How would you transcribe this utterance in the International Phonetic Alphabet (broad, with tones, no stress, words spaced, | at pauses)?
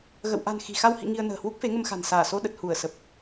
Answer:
ɣə̰˧˨w ʔa̤˨˩n xi̤˨˩xa˧w hḭ˧˨ ŋi˧ə̯nə̤ː˨˩ hwu˦˥k̚fe˨˦ŋə˧mxa̤˨˩n saː˧˩so˧ɗə˨˩t̚ hu˧˩ə̯sə˨˩p̚